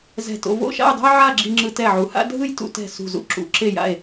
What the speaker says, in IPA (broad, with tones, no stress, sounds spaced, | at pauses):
z ɛ̤˧˩ t o̰˧ v o̰˥˧ ʃ a̰˥˧ j dˤ o̤˥ j ʕ a˥˧ ɡ͡ǁ i˧ ŋ͡ǁ ɯ˧ t ɛ˧˩ ʕ u˩˧ h a̰˥ dʱ ɯ˥˧ j t ṵ˧ t ɛ̤˧˩ s ṳ˧˩ z ṵ˥ ǁ ṵ˩˧ ǁ e˧˩ j a̰˧˩ e̯